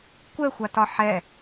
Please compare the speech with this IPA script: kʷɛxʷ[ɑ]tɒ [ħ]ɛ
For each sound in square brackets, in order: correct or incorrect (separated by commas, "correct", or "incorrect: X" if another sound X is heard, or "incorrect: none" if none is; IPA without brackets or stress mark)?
incorrect: a, correct